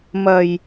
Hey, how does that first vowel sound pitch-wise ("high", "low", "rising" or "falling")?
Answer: low